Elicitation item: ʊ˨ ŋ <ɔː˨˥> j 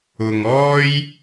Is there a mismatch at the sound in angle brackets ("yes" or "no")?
yes